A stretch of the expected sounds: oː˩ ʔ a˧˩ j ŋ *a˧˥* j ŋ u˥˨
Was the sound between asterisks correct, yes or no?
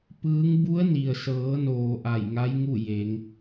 yes